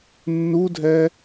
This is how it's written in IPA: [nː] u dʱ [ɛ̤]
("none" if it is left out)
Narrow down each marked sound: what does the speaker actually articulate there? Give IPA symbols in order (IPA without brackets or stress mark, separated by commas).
nː, ɛ